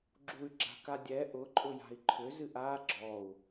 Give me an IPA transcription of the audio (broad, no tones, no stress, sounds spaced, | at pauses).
ɡ͡ǁ u y̯ ɡ͡ǁ a̤ k a dʲ ɛ ʔ ʊ ǃʼ ʊ j a̤ i̯ ǃʰ ʏ z ɨ ʔ a ɡ͡ǁ ɔ u̯